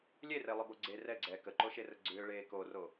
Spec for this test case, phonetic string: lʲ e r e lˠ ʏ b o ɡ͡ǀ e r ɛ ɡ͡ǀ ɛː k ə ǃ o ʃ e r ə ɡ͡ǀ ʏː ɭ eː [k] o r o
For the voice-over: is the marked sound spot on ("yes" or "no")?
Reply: yes